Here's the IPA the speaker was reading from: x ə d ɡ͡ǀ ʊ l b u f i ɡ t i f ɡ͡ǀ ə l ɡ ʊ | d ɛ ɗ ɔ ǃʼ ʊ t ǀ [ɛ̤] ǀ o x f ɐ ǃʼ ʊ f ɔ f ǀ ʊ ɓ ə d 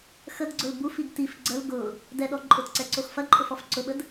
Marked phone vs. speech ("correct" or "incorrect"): incorrect